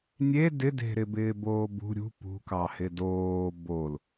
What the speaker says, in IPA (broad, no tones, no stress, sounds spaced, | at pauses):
nʲ e d ɪ d e̤ ɾ ɪ b ɪː b oː b ṳ ɾʲ ṳ p ṳ k ɑ h ɪ d oː b o l